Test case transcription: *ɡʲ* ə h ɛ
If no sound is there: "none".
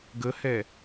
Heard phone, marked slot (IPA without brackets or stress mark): ɡ